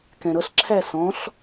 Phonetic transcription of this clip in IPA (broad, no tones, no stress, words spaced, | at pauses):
kɛ̃ɾʌɬǁʰæ sɔ̃ɬ